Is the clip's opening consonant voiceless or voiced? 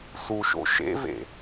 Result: voiceless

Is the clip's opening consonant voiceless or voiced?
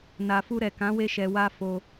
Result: voiced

